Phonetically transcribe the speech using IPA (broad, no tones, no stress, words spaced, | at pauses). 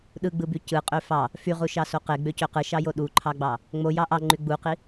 ɗɯɡ͡bɯby cɯqʼø fɑ | fyʁuʃɑso qeɡ͡bøcø qɯʃɑjo ɗuǃʰɑɡ͡bɑ | ŋ͡mojɑ ʔɑŋ͡ǃy ɡ͡buqi